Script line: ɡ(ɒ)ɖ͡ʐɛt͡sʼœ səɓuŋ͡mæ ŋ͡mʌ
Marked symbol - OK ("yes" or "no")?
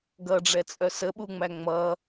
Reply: no